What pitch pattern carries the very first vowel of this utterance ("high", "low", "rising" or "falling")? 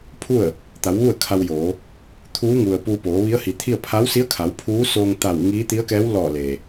falling